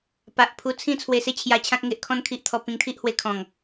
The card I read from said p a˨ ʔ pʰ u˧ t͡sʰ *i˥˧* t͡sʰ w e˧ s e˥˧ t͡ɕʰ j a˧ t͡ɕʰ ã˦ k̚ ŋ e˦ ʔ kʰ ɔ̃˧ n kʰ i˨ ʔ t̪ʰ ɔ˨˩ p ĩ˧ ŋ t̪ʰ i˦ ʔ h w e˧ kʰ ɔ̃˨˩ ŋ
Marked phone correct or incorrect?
incorrect